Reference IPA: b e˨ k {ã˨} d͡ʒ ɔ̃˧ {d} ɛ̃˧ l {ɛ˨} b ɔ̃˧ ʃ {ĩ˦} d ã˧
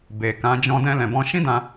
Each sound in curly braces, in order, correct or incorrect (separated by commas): incorrect, correct, incorrect, correct